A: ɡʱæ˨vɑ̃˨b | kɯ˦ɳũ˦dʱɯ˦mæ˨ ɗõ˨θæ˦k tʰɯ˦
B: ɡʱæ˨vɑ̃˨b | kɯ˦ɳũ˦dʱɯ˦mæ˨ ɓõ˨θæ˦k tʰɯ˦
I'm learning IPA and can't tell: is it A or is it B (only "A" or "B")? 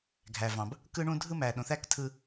A